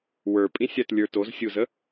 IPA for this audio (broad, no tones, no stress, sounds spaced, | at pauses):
w ə˞ pʼ ĩ sʲ a t lʲ ə˞ t o z sʲ u z ə